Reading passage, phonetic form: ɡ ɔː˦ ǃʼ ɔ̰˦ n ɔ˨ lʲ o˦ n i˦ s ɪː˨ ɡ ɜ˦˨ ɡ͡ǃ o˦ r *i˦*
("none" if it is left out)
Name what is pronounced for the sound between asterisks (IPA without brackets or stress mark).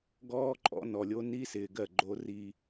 i˦